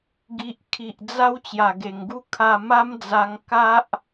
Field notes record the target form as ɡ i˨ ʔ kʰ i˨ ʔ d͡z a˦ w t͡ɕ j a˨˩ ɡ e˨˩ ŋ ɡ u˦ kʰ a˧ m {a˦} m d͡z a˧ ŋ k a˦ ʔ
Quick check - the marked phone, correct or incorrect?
correct